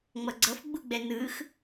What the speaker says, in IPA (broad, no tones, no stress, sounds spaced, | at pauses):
ŋ͡m ʌ ɡ͡ǀ ʌ f ɡ͡b u ɡ͡b ɛ n ɯ x